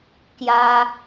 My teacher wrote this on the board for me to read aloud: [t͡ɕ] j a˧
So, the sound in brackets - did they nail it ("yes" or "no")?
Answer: no